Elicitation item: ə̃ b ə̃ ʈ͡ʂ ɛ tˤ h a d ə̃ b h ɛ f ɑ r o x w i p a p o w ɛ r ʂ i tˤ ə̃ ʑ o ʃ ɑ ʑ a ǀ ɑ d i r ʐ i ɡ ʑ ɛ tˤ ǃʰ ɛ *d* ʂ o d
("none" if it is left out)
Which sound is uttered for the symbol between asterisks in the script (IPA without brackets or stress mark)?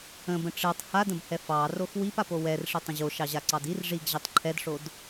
d